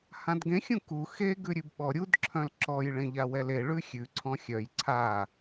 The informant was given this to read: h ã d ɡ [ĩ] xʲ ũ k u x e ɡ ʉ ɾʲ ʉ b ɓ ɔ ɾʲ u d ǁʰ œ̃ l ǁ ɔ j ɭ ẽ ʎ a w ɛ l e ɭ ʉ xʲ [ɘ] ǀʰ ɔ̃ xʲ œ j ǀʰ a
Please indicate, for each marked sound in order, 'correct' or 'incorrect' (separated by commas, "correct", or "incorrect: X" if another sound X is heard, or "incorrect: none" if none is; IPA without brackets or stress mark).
incorrect: ẽ, incorrect: ʉ